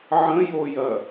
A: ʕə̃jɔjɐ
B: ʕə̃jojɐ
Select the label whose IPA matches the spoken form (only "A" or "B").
B